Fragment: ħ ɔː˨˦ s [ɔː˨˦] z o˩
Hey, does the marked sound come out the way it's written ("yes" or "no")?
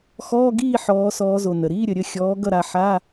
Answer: yes